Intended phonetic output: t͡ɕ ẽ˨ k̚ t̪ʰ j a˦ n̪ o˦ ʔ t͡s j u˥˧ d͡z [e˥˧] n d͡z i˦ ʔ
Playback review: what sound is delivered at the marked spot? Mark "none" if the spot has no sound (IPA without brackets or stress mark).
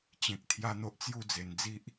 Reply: e˨˩